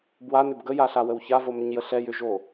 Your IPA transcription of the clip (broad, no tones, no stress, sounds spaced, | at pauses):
b w a n ʏ b ɡ ə j a ɬ a w ə w ç a v o m ʏ ɲ j ə ɬ ɛ j ʏ ʒ o